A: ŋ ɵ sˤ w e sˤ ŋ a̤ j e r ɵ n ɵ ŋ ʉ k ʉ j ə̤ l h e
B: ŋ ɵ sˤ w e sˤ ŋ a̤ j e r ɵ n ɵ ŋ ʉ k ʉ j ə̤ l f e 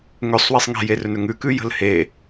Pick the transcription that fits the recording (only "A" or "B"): A